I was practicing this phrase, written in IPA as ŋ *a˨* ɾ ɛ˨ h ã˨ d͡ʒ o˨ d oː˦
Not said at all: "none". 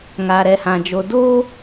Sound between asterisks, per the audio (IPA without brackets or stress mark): a˨